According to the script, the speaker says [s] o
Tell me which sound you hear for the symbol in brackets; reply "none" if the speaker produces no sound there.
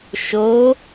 ʃ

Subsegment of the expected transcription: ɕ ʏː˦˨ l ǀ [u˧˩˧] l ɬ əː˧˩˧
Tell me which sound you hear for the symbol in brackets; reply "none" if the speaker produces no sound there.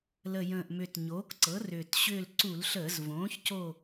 u˧˩˧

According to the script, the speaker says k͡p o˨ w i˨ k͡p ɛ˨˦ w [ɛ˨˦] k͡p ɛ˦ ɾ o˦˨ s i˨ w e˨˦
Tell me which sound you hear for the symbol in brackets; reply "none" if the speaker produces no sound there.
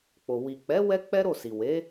ɛ˦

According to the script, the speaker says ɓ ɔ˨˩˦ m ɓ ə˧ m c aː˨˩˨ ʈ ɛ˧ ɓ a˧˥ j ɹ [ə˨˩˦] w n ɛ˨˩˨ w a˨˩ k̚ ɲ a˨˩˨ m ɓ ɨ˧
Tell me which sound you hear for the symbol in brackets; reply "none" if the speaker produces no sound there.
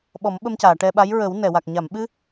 ə˨˩˦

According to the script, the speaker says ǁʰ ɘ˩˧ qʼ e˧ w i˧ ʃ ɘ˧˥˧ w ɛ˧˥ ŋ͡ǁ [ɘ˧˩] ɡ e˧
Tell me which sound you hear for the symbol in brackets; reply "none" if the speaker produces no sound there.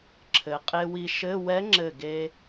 ɘ˧˩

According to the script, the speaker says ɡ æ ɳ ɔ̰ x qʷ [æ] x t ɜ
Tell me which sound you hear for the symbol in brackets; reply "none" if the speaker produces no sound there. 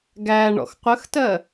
ə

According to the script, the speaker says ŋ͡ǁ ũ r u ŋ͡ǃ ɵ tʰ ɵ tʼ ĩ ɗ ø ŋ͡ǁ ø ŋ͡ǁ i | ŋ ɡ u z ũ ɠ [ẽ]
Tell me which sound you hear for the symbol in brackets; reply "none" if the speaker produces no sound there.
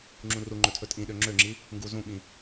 ĩ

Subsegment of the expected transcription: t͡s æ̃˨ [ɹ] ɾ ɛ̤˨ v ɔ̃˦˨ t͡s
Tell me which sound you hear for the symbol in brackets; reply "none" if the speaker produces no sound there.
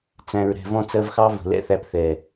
ɹ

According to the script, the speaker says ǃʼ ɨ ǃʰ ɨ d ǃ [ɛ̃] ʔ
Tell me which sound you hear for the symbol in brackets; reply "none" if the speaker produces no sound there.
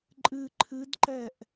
ɛ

